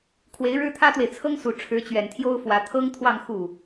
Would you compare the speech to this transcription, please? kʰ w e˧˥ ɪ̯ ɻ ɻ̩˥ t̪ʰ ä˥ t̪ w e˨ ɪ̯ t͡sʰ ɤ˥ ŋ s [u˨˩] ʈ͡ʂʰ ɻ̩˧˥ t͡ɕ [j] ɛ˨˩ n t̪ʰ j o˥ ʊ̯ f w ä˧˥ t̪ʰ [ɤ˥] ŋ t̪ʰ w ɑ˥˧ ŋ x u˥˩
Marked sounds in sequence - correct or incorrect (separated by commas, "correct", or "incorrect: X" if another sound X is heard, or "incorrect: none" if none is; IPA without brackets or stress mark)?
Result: correct, incorrect: ɥ, correct